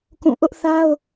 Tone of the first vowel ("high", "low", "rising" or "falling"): falling